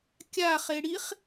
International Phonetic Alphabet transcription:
kʲa χeɽiχ

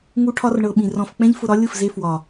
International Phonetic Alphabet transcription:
ŋu˧ʈʰɒ˧rɳɤ˨ ɓĩ˨rɔ̃˧f k͡pɛ̃˦ʎfʊ˧ɾɒ˦ lʲʊ˦˨fze˧ fwɒ˨

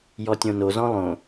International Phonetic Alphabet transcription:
jɔtʲõnozɔ̃ lˠõ

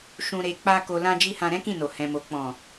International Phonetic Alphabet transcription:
ʃũ˨ɾe˨ k͡pa˧ ko˨ lã˧d͡ʒi˧ hã˧ɾɛ̃˦kĩ˦˨no˨ hɛ̃˨mo˨ k͡pɔ̃˨

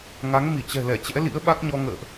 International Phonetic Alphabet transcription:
ŋa˨˦ŋmi˧˩t͡ɕɛ̤˨˩lɛ˧˩ t͡ɕɛ̰˧˥lḭ˧˥ə̯ɓa˦˥k̚ɲɔ˧ ŋə̰ː˧˨ʔ

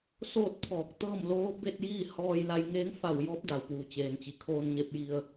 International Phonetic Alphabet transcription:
soː˥˨t̚ pʰɔː˧˩k̚ t̪ɤː˥˨m loː˧˥ be˥˨t̚jiː˥˨ hɔː˧jla˧jŋeː˧˥ŋ fa˧˩wjɔː˧˥p̚ da˩wpuː˩t͡ɕeː˩nt͡ɕi˩ kʰoː˧nɲe˧p̚ji˧ə̯

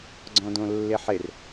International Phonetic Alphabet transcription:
ɡ͡ǀɔ̃dõlːɪħɪr

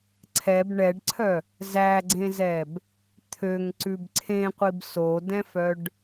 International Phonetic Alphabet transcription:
ǀʰɛb ɳɛɖǀʰœ | zæɡ͡ǀẽzɛb | t̪ʰøŋǀʉb ǀʰẽqʷib sodɛ̃fœɖ

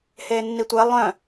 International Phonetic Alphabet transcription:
heːnːitʷɛ lˠœ̃

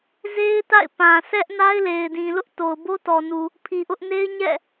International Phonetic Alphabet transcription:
ze˦ɪ̯ta̰˦˨ɪ̯pã˨ sʰɛ˦ʔ na˦ɪ̯le˨ɪ̯dĩ˨ lʊ˦ʔto˨ʊ̯ bo˦tɔ˨nu˨ | pʰi˨ʔʊ˦ʔ ne˦ɪ̯ɲɛ̰˦˨

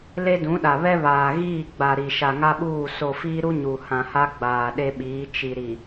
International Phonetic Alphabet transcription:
le˦dũ˨˦ɗa˨ βɛ˦βaː˨ɣiː˦˨ɡ͡ba˨ ɾi˨ ʃa˨ŋa˦ɓuː˦˨ so˨ fiː˦ɾu˦ ɲu˨hã˨ha˦ ɡ͡baː˨ɗe˦ɓiː˨˦ t͡ʃi˨ ɾi˨

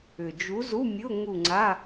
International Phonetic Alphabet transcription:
ʏ˨˩d͡ʒu˨˥ zu˧˥˧mʲʊ˧˥˧ ŋu˦˨ŋ͡ǀa˧˥˧

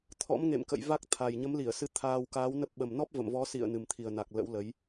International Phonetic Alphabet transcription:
t̪ʰɔ̰˧˥mŋḛ˧˨mkə̰˧˨j va˦˥k̚t̪ʰa˨˩j ɲə˨˦mli˧˩ə̯sɨ˧ t̪ʰaː˧wkaː˨˦wnə˦˥p̚ ɓə˨˩mnɔ˦˥p̚ və̰˧˨mvɔ˨˦sḭ˧˨ə̯ nɨ˨˩mt̪ʰi˨˩ə̯na˨˩k̚ lə̰˧˥wlə˨˦j

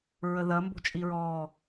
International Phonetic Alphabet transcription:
ɹəðɐ mbo̤t͡ʃʼiɹɔː

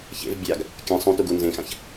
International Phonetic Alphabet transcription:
çḛv bʲaɡ | kʲɐ̃ sˤũtuɡu nzẽxãç

